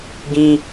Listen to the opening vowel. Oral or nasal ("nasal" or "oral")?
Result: nasal